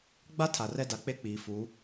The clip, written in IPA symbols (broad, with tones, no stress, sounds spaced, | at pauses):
ɡ͡b a˦ tʰ a˨ r ɛ˦ d a˨˦ k͡p e˦ k͡p iː˨ f u˨˦